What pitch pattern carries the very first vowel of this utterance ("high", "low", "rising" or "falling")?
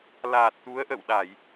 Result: low